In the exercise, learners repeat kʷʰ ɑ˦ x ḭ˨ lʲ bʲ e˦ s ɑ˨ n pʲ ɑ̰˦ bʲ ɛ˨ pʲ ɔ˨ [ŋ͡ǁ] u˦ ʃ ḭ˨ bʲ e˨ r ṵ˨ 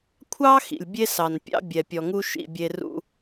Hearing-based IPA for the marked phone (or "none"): ŋ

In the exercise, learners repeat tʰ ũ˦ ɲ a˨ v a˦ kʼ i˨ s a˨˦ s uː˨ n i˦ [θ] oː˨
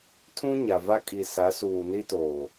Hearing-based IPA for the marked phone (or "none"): t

